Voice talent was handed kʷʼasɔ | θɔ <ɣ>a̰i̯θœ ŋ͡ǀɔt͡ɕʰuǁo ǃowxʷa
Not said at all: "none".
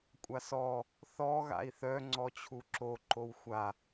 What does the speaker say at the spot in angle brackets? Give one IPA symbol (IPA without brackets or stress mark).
ɣ